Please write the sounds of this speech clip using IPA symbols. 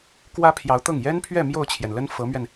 kwä˥pʰjɑ˧˥ʊ̯t̪ɤ˥˩ŋ jɛ˥npʰɥɛ˥˧ mjo˥˩ʊ̯t͡ɕʰjɛ˩nlə˥n fɤ˧˥mɥɛ˧n

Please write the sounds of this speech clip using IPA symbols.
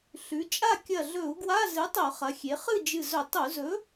ɬʉ˩˧t͡ʃʼa˥˨ kʲɐ˧˩ɮɵ˧˩˧u̯ ɡwa˧˥˧ zɨ˨˥tˤɵ˧˩˧χɐ˩˧xʲe˩˧ χɨ˥˨d͡ʒɨ˧˩zɵ˧˩˧ tˤu˧˩˧zɵ˨˥

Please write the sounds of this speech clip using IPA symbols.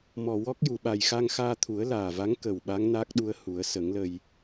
mɔ˨˩wɔ˦˥k̚ju˨˩˨ɓa˨˩j xa˧ŋxaː˧t̪ʰu˨˩˦ə̯ laː˨˩va˧˥ŋ kə˨˩w ɓa˧˥ŋnaː˦˥k̚ɗu˧ə̯ hu˨˩˦ə̯ sə˨˩˦ŋlə˧j

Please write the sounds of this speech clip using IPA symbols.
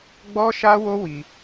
ɡ͡bɔ˦ʃa˦ wo˦wi˧

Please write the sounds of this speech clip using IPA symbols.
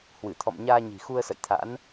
hwɨ˧˩t̪ʰɔ̰˧˨mɲaː˧ɲi̤˨˩ xu˧ə̯sə̰˧˨j t̪ʰa̰˧˥n

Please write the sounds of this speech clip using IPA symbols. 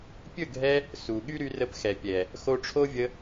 pʲɵ˦˨ɡʱɛ˧ | su˨ ɠy˦ɾy˧ rə˧p xɛ˨pʲɛ˨ | xo˧ʈ͡ʂʰo˦vʲə˧

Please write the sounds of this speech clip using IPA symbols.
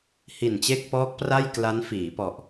hi˨˩nt͡ɕe˥˩k̚pɔː˦˥k̚pra˥˩j kla˦˥nfiː˩˦ pɔ˨˩ʔ

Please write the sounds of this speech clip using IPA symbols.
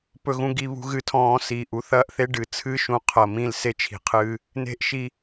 pɵ˧ɣũ˧ɡi˦˨ βṳ˦ɣɨ˧tʰɔ̃ː˧ siː˨ʔu˧θɐː˦ʔθe˦ ɖɨ˨ t͡sʰɨ˦ʃũ˨˦ qʰɐ˨mĩ˧l se˧t͡ʃʰi̤˨qʰɨː˧ | ne̤˦ʔʃi˧

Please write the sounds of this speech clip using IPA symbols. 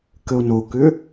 kəo̯nokʏ

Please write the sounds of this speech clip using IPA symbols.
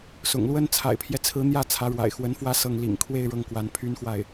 sʊ̰˨˩ŋlwə˥n t͡sʰa̰˨˩ɪ̯pʰjɛ˦t͡sʰɹ̩˧˥ n̪jä˥˩ t͡sʰä˧˥ɻwa̰˨˩ɪ̯xwə˧˥nfwä˥ sɤ˥˩ŋ lḭ˨˩ŋkʰwe˥˧ɪ̯ ɻɤ˥˩ŋkwa˧˥npʰy˥nxwa˥˩ɪ̯

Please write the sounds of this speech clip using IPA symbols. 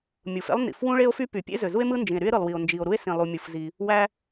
mʲu˩fḛ˥lˠ nḭ˩f wũ˥ɭe˥o̯fy˥ py˩ pʲḛ˥zø˩ zu˥e̯mɯ˥ nd͡ʒĩ˩e̯ ɾy˥e̯ɾɯ˩lˠwi˩o̯ nd͡ʒi˩o̯ ɾu˥e̯sĩ˩lˠu˩ mʲu˩fzi˩ | wæ˥

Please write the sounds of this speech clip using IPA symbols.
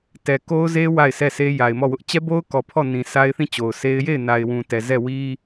tɛ˨ko˦ʊ̯ ze˦ wa˦˨ɪ̯sɛ˦˨sʰe˦ ja˨ɪ̯mɔ˦˨wʊ˦ʔ t͡ɕɛ˦bo˦ʊ̯kɔ˨ pʰɔ˦˨nĩ˨ sʰa˦ɪ̯θĩ˦˨t͡ɕo˨ʊ̯se˦ɪ̯ je˦˨ɪ̯na˨ɪ̯wũ˨tɛ˨ zɛ˦˨wi˦

